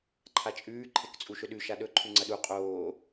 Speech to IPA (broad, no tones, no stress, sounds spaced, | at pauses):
ǃʰ a t͡ʃʼ ʉː ǃʰ e k t͡sʼ u ʃ ɵ ɗ ʉ ʃ a ɗ ɵ ǃʰ ʉ ŋ͡ǀ ɐ ɗ u qʼ oː